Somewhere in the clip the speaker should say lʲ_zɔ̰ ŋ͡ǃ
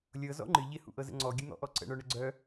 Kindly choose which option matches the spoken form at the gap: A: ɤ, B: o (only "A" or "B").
A